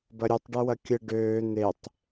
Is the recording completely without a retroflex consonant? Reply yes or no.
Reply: no